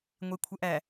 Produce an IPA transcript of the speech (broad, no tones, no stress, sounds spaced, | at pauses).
ŋʷ e kʷʰ ə ʔ æ